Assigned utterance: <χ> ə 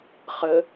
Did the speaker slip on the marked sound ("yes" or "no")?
no